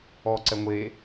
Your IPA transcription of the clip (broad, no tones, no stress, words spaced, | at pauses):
ɔːǀɛŋʷeː